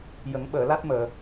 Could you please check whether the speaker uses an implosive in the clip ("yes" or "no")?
yes